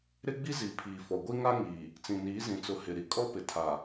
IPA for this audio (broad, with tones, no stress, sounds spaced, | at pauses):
ɾ ɪ˦ ɡ͡b i˦ z i˨ pʰ iː˨ f ɔ˨ ɡʷ i˦ ŋ a˦ ŋ iː˨ | t͡s ĩ˨ n iː˨˦ z ĩ˨ t͡s ʊ˨˦ h ɪ˨ ɾ i˨ kʼ ɔ˦ p ɪ˨ tʰ a˨